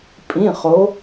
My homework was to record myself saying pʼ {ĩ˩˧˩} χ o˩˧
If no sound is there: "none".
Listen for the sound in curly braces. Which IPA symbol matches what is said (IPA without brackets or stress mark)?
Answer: ĩ˩˧˩